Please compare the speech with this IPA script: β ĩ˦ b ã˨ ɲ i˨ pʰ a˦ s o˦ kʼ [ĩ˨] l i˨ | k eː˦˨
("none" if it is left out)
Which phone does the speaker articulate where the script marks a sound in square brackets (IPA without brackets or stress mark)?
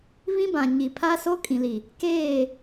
ĩ˨